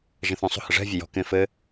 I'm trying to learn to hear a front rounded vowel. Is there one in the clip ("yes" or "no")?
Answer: yes